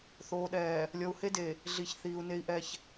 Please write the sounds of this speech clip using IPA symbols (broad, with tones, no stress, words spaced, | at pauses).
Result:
θoː˨ɗɛː˨ | lʲɔ˨u̯he˦de˨ | ɮi˨ç θiː˨u̯ne˦i̯ʔɛ˦ç